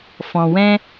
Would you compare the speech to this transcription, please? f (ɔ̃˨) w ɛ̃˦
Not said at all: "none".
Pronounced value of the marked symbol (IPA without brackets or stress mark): ɔ̃˨